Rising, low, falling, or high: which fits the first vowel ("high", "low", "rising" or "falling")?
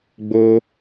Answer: high